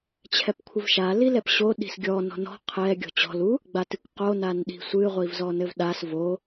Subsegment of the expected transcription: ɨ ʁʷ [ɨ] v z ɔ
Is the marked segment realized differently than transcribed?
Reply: yes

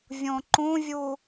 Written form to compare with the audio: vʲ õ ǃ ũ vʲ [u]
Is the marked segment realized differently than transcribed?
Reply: no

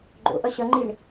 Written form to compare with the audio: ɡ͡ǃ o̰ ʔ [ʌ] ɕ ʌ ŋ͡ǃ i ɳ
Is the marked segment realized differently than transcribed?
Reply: no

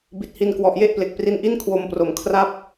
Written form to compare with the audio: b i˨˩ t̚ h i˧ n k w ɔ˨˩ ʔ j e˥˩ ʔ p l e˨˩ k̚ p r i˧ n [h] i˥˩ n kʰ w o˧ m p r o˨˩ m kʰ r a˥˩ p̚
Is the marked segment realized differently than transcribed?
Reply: yes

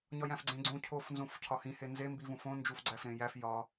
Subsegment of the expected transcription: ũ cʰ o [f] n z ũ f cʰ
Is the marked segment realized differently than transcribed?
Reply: no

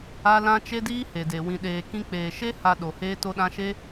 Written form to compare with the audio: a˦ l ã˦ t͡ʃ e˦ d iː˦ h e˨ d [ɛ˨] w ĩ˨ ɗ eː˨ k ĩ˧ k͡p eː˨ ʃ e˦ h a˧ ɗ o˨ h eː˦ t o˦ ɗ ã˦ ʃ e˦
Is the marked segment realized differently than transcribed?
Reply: yes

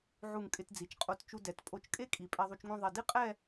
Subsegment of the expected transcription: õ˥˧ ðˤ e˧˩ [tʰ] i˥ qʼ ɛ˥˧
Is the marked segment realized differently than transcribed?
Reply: yes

